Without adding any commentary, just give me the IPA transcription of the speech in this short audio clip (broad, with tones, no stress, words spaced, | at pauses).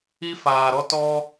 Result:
i˦faː˨ɾɔ˦ tɔ˦